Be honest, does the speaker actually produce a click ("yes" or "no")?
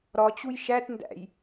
no